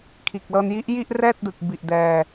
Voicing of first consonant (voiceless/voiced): voiceless